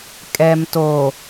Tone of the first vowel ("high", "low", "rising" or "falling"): low